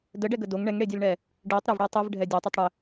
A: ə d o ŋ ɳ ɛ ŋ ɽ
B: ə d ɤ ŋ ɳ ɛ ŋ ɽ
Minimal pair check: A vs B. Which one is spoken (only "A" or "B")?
A